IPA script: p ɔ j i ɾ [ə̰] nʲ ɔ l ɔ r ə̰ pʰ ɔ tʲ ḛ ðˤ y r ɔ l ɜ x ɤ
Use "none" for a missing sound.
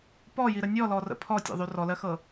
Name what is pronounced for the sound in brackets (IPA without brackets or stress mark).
ə